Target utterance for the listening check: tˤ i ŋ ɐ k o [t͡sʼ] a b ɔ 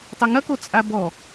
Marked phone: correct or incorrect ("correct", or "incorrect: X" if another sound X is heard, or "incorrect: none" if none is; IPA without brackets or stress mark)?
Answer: correct